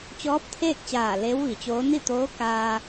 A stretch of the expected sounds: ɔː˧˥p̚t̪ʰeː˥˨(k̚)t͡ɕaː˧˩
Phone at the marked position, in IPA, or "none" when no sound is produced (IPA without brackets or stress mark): k̚